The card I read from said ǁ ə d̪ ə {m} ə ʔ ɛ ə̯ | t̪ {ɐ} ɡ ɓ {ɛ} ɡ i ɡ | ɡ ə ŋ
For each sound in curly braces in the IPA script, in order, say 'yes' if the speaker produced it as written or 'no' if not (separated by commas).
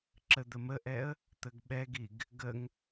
yes, no, yes